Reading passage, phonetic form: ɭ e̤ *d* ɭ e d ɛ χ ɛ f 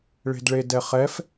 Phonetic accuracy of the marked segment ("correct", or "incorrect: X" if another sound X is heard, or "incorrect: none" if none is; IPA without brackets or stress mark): correct